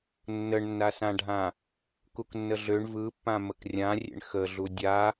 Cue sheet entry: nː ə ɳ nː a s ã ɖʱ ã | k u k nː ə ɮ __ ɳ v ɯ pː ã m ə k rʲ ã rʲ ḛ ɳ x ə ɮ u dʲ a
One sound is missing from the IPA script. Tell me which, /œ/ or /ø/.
ø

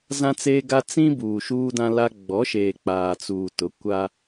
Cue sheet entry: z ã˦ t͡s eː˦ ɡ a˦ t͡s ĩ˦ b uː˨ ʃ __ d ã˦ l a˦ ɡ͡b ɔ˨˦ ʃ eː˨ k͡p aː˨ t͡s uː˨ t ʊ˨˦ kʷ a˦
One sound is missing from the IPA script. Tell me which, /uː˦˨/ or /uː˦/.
uː˦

